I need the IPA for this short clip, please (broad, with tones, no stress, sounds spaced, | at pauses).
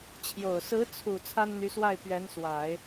t͡ɕʰ j o˨˩ ʊ̯ s ɹ̩˧˥ t͡sʰ u˨˩ t͡sʰ a˥ n n̪ y˧˥ s w a˥˩ ɪ̯ p ɥ ɛ˧˥ n s w a˨˩˦ ɪ̯